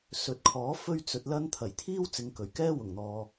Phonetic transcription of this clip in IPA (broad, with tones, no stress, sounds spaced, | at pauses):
s ɵ˨˥ t̚ kʰ ɔː˨˥ f ɵ˥ ɥ t͡s ɵ˧ t̚ l ɐ˥ n t̪ʰ ɐ˨˩ j t̪ʰ iː˥ w t͡s ɪ˨˧ ŋ k ɵ˨˩ ɥ k ɛː˥ w ʊ˨˩ ŋ n̪ ɔː˨